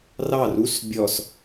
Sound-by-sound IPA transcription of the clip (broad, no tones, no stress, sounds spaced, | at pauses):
r ɑ r u s bʲ ɔ s